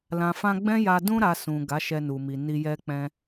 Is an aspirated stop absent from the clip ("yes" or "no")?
yes